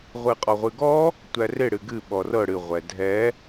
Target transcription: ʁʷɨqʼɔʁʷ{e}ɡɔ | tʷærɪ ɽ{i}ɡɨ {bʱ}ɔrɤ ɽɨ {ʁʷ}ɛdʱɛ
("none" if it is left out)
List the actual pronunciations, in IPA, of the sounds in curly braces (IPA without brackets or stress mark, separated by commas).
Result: ɨ, ɨ, ɓ, ʁʷ